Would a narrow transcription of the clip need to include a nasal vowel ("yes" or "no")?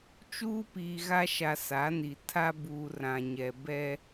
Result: yes